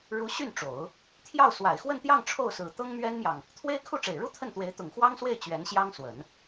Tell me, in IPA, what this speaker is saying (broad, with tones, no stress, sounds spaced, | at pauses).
ɻ u˧˥ ɕ y˥˩ n ʈ͡ʂ o˨˩˦ ʊ̯ | t̪ʰ j ɑ˥˩ ʊ̯ s w a˨˩ ɪ̯ x w ə˥˧ n t̪ j ɑ˥˧ ŋ ʈ͡ʂʰ o˥˩ ʊ̯ s ɹ̩˨˩ t̪ ɤ˥ ŋ m ɥ ɛ˥ n m j ɑ˨ ŋ | t̪ʰ w e˥ ɪ̯ kʰ u˥˩ ʈ͡ʂ e˨˩ ɪ̯ ɻ u˥ t̪ʰ ə˥˩ n t̪ w e˧˥ ɪ̯ t̪ ʊ˨˩ ŋ x w ɑ˥ ŋ s w e˥˩ ɪ̯ t͡ɕ ɥ ɛ˧˥ n ɕ j ɑ˥ ŋ s w ə˨˩˦ n